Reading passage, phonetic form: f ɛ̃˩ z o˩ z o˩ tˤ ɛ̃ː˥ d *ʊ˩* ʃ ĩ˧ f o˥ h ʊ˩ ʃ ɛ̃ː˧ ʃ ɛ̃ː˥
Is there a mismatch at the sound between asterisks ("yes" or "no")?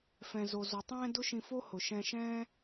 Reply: yes